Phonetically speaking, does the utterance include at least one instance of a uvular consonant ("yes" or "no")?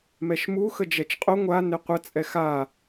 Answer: yes